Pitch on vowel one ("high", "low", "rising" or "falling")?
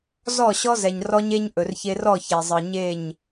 falling